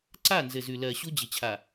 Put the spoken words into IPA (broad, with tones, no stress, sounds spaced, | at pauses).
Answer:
ǀ a˦˨ n z ɘ˨ z ʉ˨ l ɜ˨ ɕ u˦ d͡ʑ ɪ˨ t͡ɕʰ a˨